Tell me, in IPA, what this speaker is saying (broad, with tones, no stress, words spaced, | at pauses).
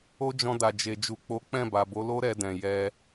o˦d͡ʒɔ̃˧ da˨d͡ʒe˨ d͡ʒu˨k͡po˨˦k͡pɛ̃˦˨ba˨ bo˨˦lo˦ ɾɛ˧ dɛ̃˨ jɛ˧